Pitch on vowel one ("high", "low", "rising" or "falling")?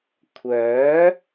rising